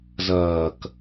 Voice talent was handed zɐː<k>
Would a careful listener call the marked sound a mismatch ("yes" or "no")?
no